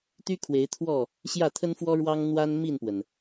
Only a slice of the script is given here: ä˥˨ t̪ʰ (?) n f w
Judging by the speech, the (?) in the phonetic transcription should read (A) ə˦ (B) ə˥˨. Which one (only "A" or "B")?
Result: A